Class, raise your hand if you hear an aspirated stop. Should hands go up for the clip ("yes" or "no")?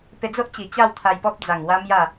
yes